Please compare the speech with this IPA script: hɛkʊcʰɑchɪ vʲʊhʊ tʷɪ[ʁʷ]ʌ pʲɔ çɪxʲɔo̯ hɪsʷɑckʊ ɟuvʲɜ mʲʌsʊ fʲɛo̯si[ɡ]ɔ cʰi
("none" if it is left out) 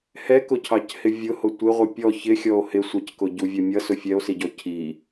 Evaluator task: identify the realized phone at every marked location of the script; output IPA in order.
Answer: ʁʷ, ɟ

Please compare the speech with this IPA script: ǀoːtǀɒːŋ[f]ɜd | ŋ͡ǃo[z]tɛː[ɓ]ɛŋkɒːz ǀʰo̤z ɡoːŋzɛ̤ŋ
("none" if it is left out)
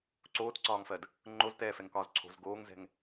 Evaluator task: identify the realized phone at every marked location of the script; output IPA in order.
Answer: f, z, f

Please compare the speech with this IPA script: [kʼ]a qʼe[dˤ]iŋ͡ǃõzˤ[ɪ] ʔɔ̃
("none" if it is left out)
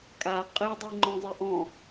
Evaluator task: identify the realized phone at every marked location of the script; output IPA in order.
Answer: kʼ, dˤ, ɪ

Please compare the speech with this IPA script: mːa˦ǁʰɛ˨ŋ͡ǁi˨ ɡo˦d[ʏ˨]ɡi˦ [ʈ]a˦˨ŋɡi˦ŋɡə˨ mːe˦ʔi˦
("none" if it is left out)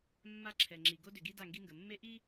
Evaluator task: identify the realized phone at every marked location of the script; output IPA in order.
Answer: ʏ˨, d

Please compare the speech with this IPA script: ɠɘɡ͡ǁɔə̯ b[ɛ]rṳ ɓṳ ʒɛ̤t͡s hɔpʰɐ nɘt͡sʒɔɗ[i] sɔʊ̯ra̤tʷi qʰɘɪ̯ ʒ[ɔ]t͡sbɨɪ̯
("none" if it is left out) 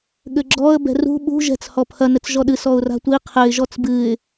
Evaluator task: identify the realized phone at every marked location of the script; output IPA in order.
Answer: ɛ̤, ɨ, ɔ

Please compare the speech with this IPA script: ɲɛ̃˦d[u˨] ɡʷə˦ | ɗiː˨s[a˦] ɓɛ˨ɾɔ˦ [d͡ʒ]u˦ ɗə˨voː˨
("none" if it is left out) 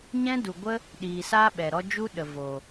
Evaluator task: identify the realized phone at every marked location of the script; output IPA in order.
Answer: u˨, a˦, d͡ʒ

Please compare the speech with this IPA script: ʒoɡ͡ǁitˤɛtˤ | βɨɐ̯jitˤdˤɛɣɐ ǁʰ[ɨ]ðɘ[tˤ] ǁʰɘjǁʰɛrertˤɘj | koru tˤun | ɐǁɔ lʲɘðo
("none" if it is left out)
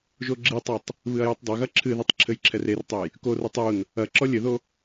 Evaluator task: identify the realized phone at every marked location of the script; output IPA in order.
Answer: ɨ, tˤ

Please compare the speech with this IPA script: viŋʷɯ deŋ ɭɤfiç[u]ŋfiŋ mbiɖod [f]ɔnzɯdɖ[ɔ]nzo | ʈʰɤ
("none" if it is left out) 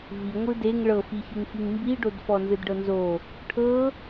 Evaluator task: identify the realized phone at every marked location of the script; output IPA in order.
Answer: ɯ, f, ɤ

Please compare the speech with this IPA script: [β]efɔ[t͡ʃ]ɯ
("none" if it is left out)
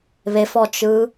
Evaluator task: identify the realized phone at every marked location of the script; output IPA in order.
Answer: β, t͡ʃ

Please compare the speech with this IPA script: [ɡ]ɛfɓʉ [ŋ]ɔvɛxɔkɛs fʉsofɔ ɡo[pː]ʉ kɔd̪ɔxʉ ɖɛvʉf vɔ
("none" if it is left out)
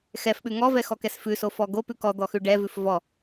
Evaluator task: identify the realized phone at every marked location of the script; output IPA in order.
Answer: x, ŋ, p

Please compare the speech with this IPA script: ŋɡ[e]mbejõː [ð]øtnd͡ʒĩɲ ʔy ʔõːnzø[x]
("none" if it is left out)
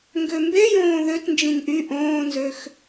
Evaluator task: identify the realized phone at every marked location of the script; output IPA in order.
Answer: ø, ð, x

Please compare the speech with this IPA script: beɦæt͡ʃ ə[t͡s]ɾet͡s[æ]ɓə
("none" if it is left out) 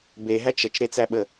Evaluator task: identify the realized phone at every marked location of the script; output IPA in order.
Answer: t͡ʃ, æ

